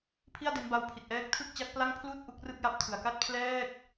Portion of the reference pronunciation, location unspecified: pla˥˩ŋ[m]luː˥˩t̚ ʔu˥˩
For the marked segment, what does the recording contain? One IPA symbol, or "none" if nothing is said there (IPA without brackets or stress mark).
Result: pʰ